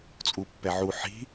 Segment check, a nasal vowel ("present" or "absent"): absent